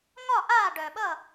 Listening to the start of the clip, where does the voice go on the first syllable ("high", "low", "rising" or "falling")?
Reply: falling